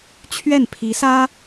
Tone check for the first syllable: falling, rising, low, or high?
falling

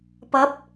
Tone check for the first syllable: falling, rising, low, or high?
rising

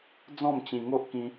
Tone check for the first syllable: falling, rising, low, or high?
falling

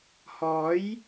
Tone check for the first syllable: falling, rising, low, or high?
rising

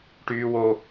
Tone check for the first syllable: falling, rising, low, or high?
high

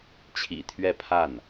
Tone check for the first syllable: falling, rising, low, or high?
low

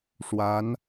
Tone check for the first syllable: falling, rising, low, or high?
rising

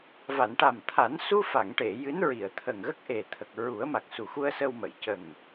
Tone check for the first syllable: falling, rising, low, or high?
low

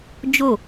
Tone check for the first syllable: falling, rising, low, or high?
falling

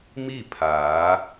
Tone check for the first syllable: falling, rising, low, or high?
falling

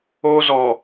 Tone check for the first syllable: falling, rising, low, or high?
high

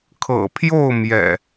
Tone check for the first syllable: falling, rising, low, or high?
low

